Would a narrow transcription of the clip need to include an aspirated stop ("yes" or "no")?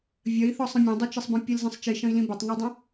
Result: no